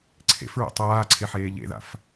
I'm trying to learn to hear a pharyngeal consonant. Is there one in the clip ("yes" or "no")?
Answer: yes